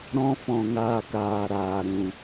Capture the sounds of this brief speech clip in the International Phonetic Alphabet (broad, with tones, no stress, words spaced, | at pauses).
ɾɔ̃˦fɔ̃˧ ŋaː˧kaː˨ɾaː˨ ɾũ˨